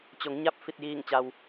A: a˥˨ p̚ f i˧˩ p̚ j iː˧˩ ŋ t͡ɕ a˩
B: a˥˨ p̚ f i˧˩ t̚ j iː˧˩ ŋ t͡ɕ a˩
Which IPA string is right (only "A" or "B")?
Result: B